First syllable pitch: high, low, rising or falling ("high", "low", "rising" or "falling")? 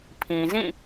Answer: low